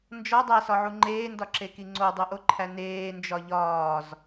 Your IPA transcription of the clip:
n d͡ʒ ɒ dˤ æ s ɒ ʕ u ŋ͡ǃ eː n d ɒ ǁ e k i ŋ͡ǀ o dˤ u ʔ o ǃʰ æ n eː n d͡ʒ ɒ ʎ ɒː z

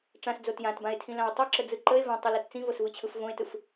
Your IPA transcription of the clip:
ʈ͡ʂ ã s d͡z o t j ã t b ã e̯ tʰ ĩ l ã o̯ tˤ ʊ ǁ ə d͡z ɯ ǃ ə e̯ v ã tˤ o l o t t͡s ĩ v o s v ɯ t͡ɕʰ ɯ f v õ e̯ t ɯ f

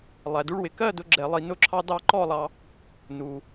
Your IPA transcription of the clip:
lˠ æ˩ d u˧ ɭ w ɪ˩ k ɜ˥˨ d ʊ˧ ɡ͡ǁ ɛ˧˩˧ lˠ i˧˩˧ n ʊ˧ ǁʰ ɑ˧ d ɑ˥˨ ǃ ɔ˥˨ lˠ ɑ˧ | n u˩

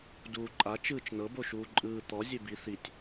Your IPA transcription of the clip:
d uː ǃʼ a t͡ʃ ɯː t͡ʃ n ɤ b o ʃ uː ǃʼ ɯː t̪ ɔ zʲ e b i θ i tʲ

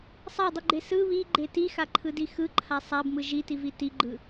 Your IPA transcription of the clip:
sˤ a dˤ i ɡ͡ǃ e s ɯ β i ɡ͡ǃ e t i x a ǃʰ ɯ d i x ɯ ǃʰ a sˤ a b m ɯ ʒ i t i v i t i ɡ͡ǃ ɯ

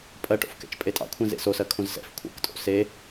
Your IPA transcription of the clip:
pʼ ɜ ʈ o̰ f k ɛ̰ t͡ʃ pʼ e tʼ ɑ̰ kʷʰ ɛ̃ z ḛ s o s ɜ kʰ õ z s ɛ̰ f kʷʰ ɛ̰ k tʼ o̰ s e

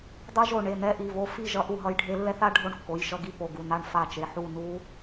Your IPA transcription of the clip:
dˤ ɯ˦˥ ʒ o˦˨ ɳ e˩˧˩ n ɛ˦˥ ʔ i˩˧˩ v o˦˨ f i˦˨ ʒ ʌ˦˥ ʔ u˦˨ ɦ ʌ˦˥ j ɖʱ e˦˥ lː ɛ˦˥ θ a˦˥ ɖʱ o˦˨ ɳ kː o˩˧˩ j ʃ ʌ˦˨ ɡ i˦˨ p o˩˧˩ ɡ u˩˧˩ n a˦˨ ɳ f a˦˨ t͡ʃ e˩˧˩ ħ u˦˨ n u˦˥

